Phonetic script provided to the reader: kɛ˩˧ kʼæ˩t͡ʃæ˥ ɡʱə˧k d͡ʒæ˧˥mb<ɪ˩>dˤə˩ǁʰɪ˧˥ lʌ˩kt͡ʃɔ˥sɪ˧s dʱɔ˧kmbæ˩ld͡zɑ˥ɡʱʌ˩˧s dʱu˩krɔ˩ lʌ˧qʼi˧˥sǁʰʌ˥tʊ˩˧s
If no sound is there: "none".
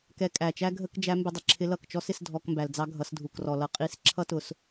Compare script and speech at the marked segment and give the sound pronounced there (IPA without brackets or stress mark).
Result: ɪ˧